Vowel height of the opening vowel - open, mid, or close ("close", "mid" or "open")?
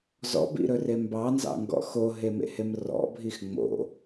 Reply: mid